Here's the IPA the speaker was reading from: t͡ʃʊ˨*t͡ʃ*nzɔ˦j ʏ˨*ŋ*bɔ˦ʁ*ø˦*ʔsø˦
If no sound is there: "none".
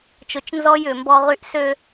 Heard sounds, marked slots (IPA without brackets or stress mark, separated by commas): t͡ʃ, m, y˦